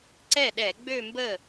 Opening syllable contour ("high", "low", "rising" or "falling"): falling